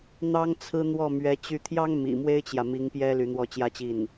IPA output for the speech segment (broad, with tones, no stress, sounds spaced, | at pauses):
n̪ ɑ˥ ŋ t͡sʰ ɹ̩˥ n̪ w ɔ˥˩ m ɥ ɛ˧˥ t͡ɕ y˥˩ t̪ʰ j ɑ˥ ŋ m ḭ˨˩ m w e˥ ɪ̯ t͡ɕ j ä˨ m i˧˥ ŋ p j ɛ˥ l y˧˥ n̪ w ɔ˥˩ t͡ɕ j ä˥ t͡ɕ i˥˩ n